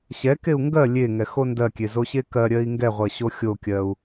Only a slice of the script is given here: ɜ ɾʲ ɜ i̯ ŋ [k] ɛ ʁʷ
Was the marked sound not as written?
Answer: yes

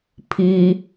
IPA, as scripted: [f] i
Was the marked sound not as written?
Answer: yes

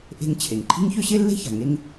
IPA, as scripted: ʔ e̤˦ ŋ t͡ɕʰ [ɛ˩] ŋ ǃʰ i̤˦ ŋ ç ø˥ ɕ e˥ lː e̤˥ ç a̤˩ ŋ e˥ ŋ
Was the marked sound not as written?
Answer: yes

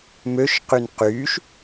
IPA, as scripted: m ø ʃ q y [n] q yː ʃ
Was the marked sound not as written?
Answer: no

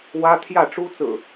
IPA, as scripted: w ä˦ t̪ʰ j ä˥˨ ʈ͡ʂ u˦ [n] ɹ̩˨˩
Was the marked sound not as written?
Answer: yes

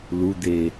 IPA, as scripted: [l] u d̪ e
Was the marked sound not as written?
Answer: no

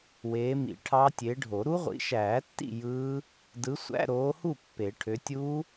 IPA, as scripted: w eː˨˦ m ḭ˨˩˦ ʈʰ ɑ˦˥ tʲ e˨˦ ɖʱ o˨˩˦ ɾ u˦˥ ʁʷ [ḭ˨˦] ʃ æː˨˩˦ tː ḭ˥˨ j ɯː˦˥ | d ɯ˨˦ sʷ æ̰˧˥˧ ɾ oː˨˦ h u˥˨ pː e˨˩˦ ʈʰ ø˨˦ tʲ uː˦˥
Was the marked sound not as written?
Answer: no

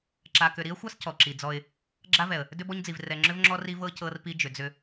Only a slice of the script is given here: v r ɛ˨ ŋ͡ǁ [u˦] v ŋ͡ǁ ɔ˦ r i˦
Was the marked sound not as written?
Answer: yes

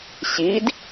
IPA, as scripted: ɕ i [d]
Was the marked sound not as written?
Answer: no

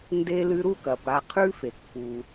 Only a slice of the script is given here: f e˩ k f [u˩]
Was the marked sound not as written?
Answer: no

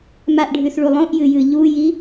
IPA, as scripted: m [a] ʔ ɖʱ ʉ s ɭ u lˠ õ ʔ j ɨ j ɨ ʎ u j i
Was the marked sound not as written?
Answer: no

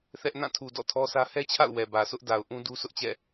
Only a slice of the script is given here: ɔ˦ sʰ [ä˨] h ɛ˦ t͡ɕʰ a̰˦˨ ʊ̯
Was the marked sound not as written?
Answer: yes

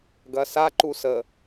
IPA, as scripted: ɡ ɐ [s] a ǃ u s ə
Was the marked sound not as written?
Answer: no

